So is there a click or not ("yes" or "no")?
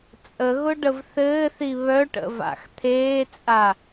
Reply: no